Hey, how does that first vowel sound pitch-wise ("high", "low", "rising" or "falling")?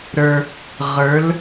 low